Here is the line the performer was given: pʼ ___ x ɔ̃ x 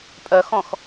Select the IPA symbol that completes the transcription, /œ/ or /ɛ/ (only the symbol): œ